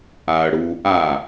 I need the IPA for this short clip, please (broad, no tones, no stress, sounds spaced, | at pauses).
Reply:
ʔ a ɐ̯ ɽ u ʔ a